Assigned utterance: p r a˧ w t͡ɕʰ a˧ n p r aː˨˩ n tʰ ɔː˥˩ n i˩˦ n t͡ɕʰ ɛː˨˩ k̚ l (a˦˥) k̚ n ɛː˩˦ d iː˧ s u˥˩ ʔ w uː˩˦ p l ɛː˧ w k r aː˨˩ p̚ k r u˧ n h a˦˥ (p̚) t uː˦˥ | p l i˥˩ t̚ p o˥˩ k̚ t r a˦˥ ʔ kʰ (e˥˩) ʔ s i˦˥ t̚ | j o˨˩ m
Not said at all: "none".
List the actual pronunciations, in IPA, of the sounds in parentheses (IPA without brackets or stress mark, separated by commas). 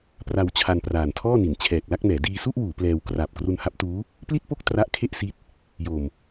a˥˩, p̚, e˥˩